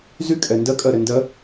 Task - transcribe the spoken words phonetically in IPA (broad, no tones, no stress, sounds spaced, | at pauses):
z y kʼ ɛ n d ɜ kʼ ɜ ɾ ɛ n d ɜ